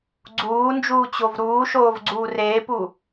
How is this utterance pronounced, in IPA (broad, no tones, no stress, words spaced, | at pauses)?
ɡ͡ǀuːnd͡ʒuːt͡ɕov ɾuːʃoːvɡ͡ǀuː reːpu